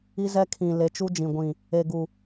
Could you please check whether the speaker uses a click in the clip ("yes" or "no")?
no